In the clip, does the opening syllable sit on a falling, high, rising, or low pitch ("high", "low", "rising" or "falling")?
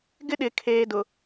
high